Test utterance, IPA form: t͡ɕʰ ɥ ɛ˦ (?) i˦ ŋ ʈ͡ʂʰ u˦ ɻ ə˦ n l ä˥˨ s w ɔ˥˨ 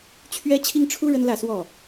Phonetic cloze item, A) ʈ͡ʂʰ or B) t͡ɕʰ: B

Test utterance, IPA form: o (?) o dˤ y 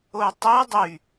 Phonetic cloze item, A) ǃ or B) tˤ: B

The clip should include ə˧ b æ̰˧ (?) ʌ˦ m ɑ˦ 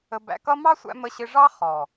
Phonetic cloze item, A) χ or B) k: B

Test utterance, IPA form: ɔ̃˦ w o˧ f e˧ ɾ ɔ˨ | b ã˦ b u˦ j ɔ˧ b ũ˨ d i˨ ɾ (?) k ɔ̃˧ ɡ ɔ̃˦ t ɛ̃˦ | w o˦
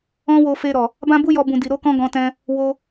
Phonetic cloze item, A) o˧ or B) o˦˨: A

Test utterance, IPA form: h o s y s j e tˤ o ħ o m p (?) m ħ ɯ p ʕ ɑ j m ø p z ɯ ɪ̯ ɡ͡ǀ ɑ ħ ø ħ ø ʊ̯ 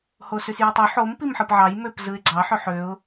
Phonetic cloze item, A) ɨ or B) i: B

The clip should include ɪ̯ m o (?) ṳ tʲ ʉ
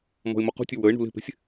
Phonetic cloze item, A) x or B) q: B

